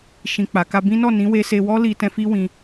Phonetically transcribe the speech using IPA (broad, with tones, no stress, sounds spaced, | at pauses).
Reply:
ʃ ĩ˨ k͡p a˨˦ k a˦ b ĩ˦ n ɔ˦˨ n ĩ˨˦ w e˧ s e˧ w ɔ˦ l i˧ t ɛ̃˧ f i˦ w ĩ˧